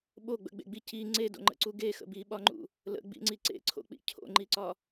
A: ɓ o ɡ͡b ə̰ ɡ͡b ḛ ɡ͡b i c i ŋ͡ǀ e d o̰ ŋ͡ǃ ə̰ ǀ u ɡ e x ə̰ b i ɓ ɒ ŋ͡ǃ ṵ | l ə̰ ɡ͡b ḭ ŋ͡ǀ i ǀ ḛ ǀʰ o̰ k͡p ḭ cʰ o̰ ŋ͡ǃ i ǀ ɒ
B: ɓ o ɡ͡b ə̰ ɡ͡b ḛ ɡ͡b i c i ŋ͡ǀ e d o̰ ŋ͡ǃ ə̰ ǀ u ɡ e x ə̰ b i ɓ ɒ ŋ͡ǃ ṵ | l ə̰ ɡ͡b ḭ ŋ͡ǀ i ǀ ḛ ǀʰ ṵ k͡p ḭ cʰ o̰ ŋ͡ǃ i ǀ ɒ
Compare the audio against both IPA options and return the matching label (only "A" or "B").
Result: A